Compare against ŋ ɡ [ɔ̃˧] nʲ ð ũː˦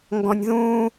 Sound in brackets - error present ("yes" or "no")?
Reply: no